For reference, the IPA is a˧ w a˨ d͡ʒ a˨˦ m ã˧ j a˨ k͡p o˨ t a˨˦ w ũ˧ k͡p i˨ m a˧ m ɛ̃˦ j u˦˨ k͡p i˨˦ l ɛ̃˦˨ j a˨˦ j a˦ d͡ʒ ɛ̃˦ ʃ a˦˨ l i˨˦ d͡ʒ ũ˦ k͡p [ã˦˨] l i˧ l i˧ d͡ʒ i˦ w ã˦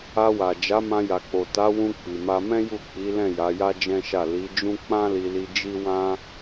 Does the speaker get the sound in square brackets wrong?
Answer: yes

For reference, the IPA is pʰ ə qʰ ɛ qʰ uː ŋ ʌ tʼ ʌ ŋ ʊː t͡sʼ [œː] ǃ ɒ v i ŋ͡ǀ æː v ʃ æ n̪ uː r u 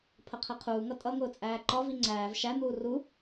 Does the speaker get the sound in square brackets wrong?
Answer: yes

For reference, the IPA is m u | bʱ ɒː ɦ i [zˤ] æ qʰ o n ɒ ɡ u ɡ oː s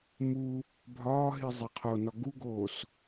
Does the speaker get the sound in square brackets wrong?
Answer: no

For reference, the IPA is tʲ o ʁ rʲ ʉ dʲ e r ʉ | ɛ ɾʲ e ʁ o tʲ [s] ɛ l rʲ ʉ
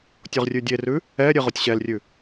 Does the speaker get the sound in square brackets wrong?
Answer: yes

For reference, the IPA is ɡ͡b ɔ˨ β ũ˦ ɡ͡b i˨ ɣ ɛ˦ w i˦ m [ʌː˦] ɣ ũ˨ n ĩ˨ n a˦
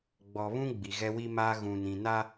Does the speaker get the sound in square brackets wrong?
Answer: yes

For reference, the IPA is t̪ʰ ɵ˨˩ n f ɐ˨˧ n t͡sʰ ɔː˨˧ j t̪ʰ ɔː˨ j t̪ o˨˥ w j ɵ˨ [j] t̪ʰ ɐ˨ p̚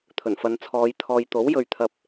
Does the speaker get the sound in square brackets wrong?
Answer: yes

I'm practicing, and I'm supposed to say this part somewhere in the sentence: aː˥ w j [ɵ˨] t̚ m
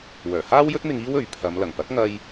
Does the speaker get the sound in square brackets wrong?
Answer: yes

